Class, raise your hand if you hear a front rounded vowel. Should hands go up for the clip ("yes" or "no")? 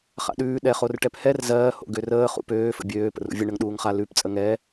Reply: yes